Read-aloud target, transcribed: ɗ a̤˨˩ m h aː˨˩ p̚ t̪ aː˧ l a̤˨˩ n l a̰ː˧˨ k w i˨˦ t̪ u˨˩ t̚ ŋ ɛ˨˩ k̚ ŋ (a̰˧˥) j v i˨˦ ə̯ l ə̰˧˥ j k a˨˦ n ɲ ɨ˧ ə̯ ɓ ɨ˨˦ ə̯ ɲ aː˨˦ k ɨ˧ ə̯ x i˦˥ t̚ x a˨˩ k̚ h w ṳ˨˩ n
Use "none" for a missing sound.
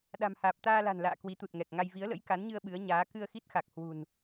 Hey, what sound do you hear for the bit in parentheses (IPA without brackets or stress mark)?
a˧